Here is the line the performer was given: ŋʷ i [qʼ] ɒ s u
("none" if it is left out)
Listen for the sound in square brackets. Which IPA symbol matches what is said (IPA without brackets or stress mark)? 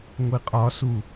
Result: qʼ